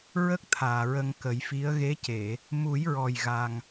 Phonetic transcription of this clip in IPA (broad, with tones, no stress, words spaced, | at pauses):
ɹə˦˥k̚ t̪ʰaː˨˩ɹə˧ŋkə˨˩˦jfi˧˥ə̯ ɣe˧˥ce˨˩˨ | mu˨˩˦jɹɔ˨˩j ɣa˧ŋ